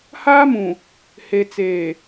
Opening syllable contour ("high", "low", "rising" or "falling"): high